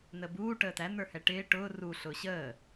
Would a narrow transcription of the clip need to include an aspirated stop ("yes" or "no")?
no